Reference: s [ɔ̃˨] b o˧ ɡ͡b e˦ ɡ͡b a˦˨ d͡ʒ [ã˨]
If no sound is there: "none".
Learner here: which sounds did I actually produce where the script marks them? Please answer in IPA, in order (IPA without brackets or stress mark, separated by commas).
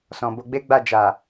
ɔ̃˨, a˨